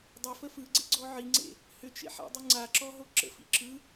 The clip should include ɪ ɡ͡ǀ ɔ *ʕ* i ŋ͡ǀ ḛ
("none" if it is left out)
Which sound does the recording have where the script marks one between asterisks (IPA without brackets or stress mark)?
ʕ